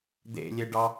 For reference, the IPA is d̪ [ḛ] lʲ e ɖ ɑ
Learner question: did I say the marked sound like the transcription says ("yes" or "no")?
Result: yes